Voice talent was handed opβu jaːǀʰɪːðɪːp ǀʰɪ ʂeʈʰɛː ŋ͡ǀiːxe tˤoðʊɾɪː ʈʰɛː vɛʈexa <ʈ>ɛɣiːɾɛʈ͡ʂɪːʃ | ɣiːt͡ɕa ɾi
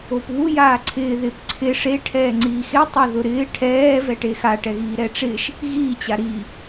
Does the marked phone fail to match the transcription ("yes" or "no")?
no